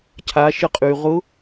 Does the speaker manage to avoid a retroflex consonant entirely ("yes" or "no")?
yes